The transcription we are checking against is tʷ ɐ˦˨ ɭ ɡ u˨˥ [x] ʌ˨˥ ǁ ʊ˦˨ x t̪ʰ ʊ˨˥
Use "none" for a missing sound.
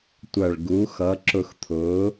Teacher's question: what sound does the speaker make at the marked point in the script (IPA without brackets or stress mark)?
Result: x